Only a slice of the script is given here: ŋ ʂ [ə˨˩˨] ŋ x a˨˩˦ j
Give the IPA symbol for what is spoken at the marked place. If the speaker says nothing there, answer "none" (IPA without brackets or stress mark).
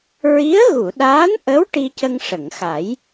ə˨˩˨